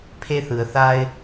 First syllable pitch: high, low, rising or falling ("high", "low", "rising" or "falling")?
high